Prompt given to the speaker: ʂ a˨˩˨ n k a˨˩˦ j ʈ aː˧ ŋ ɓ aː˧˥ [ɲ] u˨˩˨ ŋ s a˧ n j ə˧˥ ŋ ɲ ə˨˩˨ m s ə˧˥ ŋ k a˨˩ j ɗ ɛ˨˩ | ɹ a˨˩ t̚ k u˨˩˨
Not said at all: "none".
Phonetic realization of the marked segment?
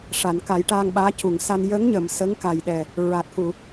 c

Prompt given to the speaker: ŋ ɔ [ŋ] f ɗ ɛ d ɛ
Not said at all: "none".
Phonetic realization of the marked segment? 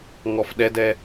none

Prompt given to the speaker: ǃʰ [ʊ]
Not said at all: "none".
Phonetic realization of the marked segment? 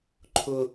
ʊ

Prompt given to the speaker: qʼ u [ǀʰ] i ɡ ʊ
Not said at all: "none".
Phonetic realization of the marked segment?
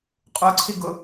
ǀʰ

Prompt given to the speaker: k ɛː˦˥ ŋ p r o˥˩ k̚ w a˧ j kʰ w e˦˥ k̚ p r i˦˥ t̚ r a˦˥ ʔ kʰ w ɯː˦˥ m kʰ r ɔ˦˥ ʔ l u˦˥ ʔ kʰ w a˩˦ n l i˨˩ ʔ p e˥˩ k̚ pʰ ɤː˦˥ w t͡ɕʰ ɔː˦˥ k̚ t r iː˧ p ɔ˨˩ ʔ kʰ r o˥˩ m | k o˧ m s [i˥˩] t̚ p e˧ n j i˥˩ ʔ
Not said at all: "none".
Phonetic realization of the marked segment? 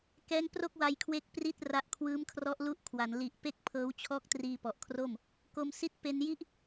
i˦˥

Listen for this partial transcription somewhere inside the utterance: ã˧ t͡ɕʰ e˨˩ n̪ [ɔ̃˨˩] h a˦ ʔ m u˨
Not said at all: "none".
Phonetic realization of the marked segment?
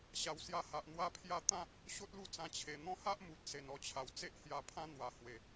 ɔ̃˦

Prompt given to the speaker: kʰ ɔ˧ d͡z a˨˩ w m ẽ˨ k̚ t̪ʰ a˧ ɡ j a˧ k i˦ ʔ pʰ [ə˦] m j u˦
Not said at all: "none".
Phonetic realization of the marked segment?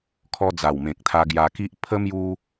ə˦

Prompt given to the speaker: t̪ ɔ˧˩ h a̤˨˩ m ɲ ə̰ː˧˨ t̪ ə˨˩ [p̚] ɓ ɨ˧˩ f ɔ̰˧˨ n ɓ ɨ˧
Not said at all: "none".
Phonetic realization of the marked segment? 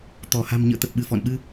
p̚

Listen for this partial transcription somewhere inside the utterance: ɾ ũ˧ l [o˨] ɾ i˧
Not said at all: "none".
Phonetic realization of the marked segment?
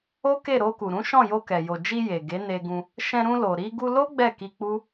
o˨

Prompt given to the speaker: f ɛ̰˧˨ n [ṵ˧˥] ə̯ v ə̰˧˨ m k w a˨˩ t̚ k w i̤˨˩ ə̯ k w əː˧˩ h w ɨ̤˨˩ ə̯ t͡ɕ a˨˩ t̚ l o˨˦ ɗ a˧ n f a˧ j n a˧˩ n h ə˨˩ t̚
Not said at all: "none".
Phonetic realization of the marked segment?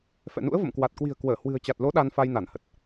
ṵ˧˥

